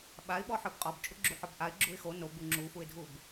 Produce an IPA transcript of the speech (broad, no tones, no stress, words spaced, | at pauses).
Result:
ɓaɪ̯ɓɔħə˞b qʼɔbt͡ʃʼuɡ͡ǁuħɔb ʔaɪ̯ɡ͡ǁuɪ̯ xo nobu ŋ͡ǁufuɪ̯dʱub